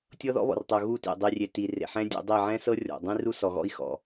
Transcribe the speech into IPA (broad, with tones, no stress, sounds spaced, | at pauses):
tʲ ɤ˦ ð ɔ̰˦ β ɔ̰˨ r tˤ o˨ ɣ u˦˨ t ḛ˨ dˤ i˨ rʲ e˨ t i˨ r ḛ˨ ħ ɛ̃˦ dʲ ɛ̰˨˦ dˤ i˦˨ ʕ ɛ̃˦ s ɤ˦ rʲ ɔ̰˨ dˤ ĩ˦ r u˦ s ɔ˨ ɣ ɔ̰˦ i̯ x ɔ̰˨